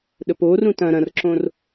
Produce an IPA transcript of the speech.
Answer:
ɗ ə p o r ũ t ɐ̃ ɾ ɐ̃ r ǁ õ r

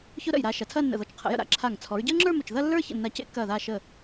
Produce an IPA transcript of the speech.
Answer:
ç ʊ˥ ɾ ə̰˧˩ j ɾ a˧ ʃ ɐ˩˧ tʰ ɐː˥˧ nː ə̰˧˩ ð ɔ˧˩ t͡ʃ qʰ ə̰˩˧ j ə̰˧ ɾ a̰˧˩ ǁʰ a˧˩ ŋ t͡sʰ ɔ˩˧ ɹ ɟ əː˥ ŋ͡ǁ ə˞˥˧ m ʊ˧˩ t͡ʃ ð ɐ˥˧ lː ə˞˥˧ ç ə̰˧˩ nː a˧ c ḛ˥˧ kː ɐː˧˩ ð aː˧˩ ʃ əː˧˩

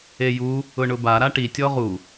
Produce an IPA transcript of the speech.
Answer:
e j u | ʊ ɳ ʊ b a ɾ a ʈ i tʲ ɔ ʁ u

